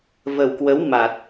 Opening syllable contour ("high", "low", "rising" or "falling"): low